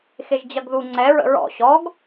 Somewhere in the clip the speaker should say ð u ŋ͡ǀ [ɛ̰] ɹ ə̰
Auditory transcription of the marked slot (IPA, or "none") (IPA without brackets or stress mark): ɛ